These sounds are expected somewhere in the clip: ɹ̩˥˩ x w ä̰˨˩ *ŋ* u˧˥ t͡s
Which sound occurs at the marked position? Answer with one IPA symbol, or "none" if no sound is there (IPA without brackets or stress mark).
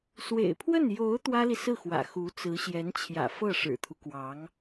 x